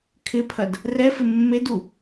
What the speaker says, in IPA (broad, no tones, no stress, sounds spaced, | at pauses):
kʰ ɪ pʰ ɐ d | r ɛ f ɪ mː e d u